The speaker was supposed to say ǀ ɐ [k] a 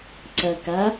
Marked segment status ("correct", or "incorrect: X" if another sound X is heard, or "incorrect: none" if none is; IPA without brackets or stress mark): correct